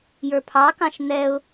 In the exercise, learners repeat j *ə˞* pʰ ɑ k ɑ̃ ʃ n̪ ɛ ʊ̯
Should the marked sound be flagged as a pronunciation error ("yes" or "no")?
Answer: no